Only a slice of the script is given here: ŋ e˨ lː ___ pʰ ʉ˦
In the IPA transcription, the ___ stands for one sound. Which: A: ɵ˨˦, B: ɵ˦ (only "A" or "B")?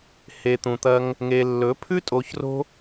A